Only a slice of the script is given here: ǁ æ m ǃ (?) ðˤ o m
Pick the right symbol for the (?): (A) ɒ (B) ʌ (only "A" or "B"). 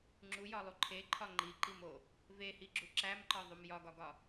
A